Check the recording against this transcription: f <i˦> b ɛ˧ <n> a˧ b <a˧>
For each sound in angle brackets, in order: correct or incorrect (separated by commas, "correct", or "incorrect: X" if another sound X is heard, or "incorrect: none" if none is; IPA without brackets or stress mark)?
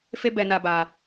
incorrect: e˦, correct, correct